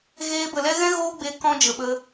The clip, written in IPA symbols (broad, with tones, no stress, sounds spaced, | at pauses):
ɣ eː˧ b ə˨ l ɛ˦ ɣ ɛ̃˦ ɣ oː˦ ɡ͡b e˧ k ɔ̃˦ d͡ʒ ə˨ ɓ ə˧